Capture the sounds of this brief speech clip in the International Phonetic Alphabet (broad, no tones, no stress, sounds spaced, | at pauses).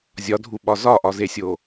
zʲ ɒ dʱ u ɓ ɒ z ɒ ʔ ɒ z e sʲ o